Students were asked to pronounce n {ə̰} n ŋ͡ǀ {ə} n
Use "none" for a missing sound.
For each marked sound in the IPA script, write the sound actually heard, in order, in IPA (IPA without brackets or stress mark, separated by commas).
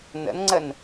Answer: ə̰, ə